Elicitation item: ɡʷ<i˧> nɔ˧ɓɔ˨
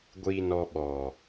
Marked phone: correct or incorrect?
correct